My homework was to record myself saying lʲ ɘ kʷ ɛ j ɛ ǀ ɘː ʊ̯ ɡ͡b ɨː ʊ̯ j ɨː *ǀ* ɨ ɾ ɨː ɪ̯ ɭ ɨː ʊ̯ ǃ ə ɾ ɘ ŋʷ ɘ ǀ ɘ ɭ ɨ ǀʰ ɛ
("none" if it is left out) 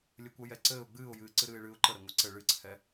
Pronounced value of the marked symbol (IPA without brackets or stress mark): ǀ